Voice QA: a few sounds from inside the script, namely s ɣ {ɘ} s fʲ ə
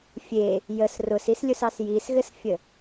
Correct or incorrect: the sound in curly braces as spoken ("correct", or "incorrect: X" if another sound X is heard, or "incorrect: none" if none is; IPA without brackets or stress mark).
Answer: correct